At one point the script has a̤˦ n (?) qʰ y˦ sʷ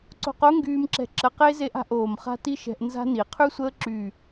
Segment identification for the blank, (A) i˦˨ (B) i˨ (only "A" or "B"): B